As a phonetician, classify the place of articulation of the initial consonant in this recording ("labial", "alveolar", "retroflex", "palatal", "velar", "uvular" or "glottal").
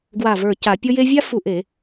velar